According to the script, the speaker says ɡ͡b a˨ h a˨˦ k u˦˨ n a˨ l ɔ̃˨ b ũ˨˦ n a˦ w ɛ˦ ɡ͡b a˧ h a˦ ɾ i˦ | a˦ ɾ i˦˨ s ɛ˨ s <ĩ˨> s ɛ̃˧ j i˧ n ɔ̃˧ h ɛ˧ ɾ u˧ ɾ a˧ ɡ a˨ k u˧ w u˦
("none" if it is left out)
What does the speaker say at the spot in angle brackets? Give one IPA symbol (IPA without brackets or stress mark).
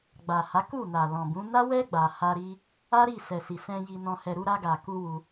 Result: i˨